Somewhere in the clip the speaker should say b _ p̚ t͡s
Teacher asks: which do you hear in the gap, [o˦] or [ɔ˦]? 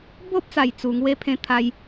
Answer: o˦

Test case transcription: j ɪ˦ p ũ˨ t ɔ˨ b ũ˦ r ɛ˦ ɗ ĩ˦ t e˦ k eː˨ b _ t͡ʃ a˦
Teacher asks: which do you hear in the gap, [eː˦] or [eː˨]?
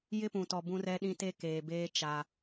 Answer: eː˦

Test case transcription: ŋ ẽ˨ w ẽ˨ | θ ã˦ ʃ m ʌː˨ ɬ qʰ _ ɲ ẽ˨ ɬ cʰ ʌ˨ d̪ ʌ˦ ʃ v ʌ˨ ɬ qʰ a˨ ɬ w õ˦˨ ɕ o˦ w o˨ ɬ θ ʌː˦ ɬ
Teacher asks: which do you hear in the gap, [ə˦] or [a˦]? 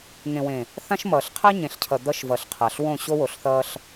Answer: a˦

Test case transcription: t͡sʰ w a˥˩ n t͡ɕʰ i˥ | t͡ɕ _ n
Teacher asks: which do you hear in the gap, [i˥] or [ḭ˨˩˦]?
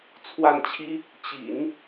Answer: ḭ˨˩˦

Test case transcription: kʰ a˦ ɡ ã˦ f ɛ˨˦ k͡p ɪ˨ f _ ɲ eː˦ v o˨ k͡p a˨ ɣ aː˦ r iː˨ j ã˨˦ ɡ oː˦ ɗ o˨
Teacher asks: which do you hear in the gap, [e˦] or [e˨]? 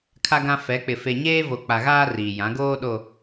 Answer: e˨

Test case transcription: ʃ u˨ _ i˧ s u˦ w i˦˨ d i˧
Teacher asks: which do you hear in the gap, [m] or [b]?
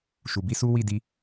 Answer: b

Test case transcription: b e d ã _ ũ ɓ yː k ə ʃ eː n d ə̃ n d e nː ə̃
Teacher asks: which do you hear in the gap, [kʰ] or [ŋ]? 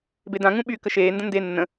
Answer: ŋ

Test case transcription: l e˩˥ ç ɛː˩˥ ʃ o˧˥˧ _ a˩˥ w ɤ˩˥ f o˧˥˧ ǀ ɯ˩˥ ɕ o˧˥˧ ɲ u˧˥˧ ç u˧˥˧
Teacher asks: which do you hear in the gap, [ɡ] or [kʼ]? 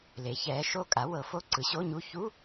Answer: kʼ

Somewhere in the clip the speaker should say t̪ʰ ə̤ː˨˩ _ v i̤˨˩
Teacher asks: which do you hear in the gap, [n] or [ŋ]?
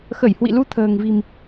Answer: ŋ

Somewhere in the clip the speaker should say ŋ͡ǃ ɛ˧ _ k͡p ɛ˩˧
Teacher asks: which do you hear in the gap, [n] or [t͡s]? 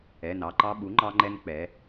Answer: n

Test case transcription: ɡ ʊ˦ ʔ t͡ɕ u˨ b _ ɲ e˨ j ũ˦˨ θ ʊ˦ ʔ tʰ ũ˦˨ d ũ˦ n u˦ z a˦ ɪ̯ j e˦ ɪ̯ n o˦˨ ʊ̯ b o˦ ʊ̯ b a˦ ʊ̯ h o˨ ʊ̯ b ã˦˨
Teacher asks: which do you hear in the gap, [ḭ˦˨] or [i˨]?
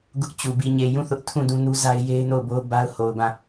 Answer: i˨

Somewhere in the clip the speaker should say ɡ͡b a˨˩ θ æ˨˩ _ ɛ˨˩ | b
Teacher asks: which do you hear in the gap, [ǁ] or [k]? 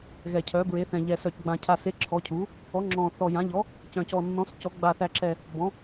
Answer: ǁ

